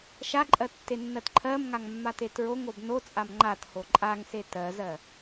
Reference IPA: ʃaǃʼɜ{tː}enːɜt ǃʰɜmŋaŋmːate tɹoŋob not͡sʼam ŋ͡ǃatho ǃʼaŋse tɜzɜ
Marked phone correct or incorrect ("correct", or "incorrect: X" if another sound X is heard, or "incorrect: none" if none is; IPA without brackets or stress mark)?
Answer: correct